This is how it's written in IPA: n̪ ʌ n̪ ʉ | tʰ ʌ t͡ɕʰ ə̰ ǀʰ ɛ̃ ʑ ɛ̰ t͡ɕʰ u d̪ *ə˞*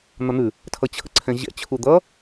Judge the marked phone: incorrect: ʌ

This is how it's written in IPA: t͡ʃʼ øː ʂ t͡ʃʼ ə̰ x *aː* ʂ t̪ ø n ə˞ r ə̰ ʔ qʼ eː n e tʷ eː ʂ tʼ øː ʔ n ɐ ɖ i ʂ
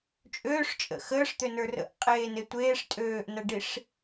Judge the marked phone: incorrect: əː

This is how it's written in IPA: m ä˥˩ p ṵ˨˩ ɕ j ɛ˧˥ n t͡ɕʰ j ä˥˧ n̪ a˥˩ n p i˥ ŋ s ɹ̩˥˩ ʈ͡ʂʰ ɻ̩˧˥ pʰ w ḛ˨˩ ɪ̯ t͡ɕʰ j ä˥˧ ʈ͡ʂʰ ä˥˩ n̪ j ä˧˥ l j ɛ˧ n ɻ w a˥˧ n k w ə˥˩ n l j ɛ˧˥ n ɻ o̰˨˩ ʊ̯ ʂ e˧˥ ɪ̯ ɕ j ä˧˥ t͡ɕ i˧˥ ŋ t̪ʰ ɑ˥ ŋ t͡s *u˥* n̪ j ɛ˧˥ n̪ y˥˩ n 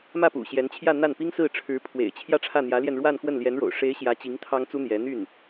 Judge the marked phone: correct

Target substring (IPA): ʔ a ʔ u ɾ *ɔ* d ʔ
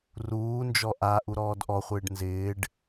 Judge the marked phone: incorrect: ɔː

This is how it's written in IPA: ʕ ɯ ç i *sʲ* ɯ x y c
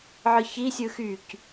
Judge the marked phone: correct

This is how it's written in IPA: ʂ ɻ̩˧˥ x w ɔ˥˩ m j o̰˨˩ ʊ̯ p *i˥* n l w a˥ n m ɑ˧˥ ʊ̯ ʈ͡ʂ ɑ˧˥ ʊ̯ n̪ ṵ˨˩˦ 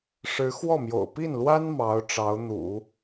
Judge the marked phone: incorrect: i˥˩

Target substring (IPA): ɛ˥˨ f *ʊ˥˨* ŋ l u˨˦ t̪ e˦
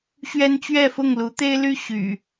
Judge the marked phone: correct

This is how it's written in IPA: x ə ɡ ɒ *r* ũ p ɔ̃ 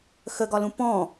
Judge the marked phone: incorrect: l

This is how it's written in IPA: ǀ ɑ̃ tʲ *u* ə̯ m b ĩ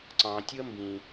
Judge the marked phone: correct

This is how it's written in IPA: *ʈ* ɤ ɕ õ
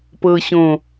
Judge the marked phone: incorrect: p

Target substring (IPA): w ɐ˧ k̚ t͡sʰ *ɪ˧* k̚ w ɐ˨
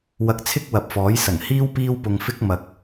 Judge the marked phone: incorrect: ɪ˥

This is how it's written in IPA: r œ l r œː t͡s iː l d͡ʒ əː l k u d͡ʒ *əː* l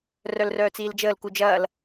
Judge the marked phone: incorrect: ɐː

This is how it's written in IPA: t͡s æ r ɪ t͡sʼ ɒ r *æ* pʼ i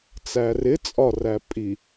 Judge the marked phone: correct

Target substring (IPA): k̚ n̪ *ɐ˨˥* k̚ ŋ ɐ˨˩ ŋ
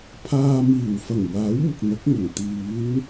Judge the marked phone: correct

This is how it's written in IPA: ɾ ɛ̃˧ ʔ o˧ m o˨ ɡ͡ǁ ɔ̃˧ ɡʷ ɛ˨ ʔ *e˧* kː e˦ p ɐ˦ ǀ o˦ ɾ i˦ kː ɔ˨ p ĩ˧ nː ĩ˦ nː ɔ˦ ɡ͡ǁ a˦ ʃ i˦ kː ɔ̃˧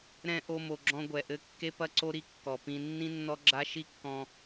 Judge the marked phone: incorrect: ɘ˧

